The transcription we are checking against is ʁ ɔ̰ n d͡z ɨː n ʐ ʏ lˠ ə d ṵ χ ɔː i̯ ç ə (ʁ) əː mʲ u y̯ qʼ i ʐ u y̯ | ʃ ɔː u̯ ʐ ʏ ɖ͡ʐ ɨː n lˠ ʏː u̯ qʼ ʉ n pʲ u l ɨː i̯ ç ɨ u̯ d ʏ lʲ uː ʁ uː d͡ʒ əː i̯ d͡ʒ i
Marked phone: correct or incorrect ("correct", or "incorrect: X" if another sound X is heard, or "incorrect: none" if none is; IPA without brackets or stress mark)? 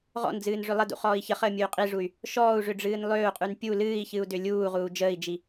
incorrect: χ